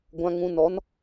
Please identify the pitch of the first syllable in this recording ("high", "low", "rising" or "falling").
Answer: low